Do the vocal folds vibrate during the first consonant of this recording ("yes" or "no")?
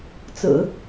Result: no